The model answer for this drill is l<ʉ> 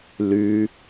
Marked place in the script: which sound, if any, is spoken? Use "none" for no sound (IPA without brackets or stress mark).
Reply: ʉ